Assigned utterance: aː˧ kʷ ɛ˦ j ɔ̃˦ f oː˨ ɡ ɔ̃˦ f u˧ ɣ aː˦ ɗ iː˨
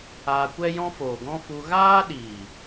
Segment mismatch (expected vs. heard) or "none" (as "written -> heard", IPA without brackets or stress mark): none